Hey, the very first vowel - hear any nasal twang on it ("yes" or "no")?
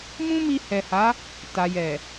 yes